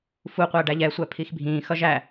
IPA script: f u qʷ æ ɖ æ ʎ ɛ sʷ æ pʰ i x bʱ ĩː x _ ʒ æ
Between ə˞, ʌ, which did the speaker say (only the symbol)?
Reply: ʌ